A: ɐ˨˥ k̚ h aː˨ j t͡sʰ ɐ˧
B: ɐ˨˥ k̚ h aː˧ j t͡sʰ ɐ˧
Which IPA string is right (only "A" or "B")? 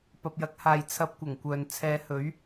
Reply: A